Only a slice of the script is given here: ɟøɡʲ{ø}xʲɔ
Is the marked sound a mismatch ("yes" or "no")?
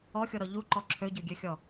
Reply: no